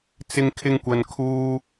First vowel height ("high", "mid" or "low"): high